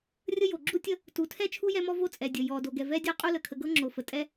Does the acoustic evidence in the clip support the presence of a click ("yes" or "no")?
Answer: yes